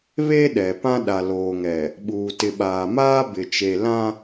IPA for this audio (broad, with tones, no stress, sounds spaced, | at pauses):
β e˦ ɗ ɛ˨ p ã˦ ɗ a˨ l oː˨ ŋ ɛ˨ | ɓ uː˨ t ɪ˨ ɓ aː˨ m aː˦ b ɪ˨ t͡ʃ e˨ l ã˦